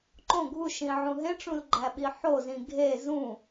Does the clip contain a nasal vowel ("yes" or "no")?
yes